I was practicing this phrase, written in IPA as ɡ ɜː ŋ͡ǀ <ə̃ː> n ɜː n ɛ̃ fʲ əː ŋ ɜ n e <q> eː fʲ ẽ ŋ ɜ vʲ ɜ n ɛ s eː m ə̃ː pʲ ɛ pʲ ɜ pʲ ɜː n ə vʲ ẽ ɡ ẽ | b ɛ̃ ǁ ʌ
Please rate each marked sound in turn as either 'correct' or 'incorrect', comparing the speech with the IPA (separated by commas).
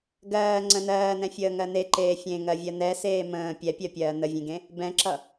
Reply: incorrect, incorrect